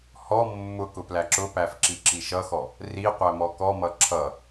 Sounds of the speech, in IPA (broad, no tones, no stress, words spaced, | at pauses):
hɔ mːʊ kʊplæǁʊpæf ǁiǁiʃʌxɔ | ri qʷæmɔkɔmʌ ǁʰʌ